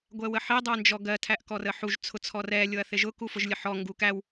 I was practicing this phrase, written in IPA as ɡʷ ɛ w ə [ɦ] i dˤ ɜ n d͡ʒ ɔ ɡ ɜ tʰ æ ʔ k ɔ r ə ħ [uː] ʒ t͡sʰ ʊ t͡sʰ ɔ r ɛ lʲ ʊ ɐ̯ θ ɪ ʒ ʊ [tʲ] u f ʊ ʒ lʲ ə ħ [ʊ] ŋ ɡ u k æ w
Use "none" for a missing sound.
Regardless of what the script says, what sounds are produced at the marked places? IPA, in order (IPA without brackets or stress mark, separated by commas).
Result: ħ, u, k, ɔ